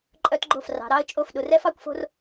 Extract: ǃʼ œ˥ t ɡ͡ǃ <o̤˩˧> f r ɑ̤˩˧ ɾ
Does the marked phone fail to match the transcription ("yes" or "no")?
yes